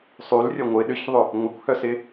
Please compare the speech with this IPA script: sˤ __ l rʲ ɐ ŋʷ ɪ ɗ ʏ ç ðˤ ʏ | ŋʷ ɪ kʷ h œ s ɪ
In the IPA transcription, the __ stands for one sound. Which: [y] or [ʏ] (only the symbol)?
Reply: y